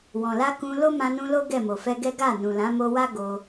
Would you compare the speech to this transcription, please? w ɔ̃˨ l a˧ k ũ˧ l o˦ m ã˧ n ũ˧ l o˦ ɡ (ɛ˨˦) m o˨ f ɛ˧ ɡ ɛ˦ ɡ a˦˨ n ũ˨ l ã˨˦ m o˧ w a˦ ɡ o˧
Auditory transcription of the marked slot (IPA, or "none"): ɛ˦˨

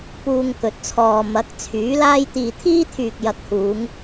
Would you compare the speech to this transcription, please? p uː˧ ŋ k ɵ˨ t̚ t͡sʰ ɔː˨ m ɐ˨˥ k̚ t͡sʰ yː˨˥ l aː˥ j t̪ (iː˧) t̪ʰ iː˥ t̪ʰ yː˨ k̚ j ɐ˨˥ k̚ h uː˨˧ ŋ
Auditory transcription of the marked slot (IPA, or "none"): iː˧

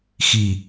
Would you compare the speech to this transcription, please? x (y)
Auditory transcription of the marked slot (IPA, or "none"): i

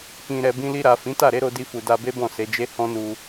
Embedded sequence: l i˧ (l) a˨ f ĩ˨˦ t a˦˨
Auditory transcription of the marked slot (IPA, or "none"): ɾ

